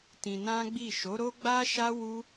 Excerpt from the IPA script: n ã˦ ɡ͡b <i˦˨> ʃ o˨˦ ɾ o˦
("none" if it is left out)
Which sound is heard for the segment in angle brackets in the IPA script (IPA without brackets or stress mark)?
i˦˨